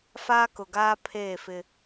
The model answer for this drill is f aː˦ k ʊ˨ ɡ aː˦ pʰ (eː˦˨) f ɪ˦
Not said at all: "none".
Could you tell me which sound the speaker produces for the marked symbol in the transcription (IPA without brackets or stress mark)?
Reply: eː˦˨